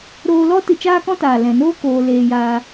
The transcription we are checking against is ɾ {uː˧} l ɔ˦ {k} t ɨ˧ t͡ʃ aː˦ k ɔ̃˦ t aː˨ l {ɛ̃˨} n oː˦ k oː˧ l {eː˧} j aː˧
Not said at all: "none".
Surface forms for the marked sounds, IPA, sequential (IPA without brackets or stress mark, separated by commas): oː˧, none, ɛ̃˨, eː˧